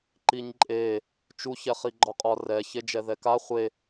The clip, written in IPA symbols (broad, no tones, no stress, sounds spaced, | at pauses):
ǃ i ɲ ǃʼ e | t͡ʃ u ç ɛ χ i ɡ͡ǃ ɒ qʼ ɒ r ɛ ç e d͡ʒ ɛ ð ɛ k a χʷ e